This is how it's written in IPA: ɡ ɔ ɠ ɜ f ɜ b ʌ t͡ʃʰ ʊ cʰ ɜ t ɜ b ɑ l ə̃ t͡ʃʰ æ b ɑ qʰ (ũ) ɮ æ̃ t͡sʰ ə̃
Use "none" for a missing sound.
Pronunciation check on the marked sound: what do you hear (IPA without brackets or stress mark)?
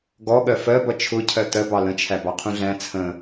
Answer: ũ